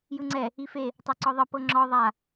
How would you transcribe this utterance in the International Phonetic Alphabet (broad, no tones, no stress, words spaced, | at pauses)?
jɯŋ͡ǀɛ | ife | tˤɤǀɔðˤɤ pɤŋ͡ǁɔ ðˤa